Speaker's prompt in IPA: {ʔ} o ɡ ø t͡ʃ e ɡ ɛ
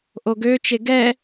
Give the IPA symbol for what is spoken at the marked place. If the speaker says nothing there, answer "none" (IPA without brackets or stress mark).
ʔ